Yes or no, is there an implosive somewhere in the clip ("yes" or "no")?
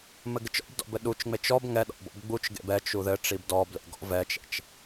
yes